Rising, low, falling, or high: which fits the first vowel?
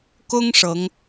high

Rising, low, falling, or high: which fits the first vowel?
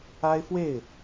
high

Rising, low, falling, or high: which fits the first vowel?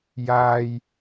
low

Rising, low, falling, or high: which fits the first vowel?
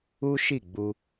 high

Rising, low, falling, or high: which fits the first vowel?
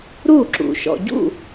falling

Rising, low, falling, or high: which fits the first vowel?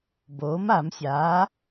rising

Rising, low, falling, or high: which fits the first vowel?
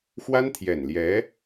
high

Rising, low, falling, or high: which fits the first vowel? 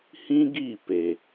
high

